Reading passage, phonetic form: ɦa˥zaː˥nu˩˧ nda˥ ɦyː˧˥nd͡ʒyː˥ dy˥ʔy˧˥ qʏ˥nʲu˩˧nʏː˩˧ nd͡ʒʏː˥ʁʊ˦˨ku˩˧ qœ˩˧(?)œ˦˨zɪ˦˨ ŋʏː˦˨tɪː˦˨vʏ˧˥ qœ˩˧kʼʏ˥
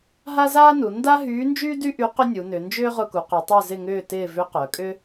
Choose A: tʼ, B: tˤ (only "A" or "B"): B